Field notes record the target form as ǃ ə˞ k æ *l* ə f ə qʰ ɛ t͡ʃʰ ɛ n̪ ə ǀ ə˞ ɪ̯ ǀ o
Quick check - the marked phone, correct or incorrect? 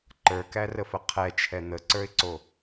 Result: incorrect